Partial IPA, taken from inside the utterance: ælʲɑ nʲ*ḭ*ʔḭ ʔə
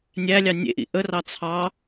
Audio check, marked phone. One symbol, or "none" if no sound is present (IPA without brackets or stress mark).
ḛ